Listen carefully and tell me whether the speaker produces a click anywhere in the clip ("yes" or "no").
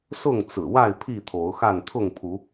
no